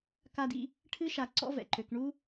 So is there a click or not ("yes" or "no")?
yes